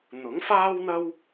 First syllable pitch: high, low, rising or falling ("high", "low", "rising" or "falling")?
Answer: rising